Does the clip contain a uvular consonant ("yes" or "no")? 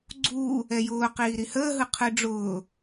yes